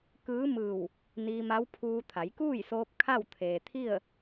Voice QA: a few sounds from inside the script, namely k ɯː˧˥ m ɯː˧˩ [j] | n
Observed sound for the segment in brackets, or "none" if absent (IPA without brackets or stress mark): w